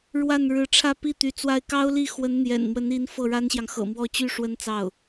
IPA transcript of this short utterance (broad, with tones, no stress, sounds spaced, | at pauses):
ɻ w a˥˩ n ɻ ɻ̩˧˥ ʈ͡ʂʰ ä˥˧ p i˥˩ t̪ y˧˥ t͡s w a˥˩ ɪ̯ k ɑ˥ ʊ̯ l i˥˩ x w ə˧˥ n n̪ j ɛ̰˨˩ n m w ə˧˥ n i˧˥ n f ɤ˥˩ ɻ a˥ n ɕ j ɑ˨ ŋ x ɤ̰˨˩ m w ɔ˥˩ t͡ɕ y˥ ʂ w ə˥ n t͡s ɑ˥˩ ʊ̯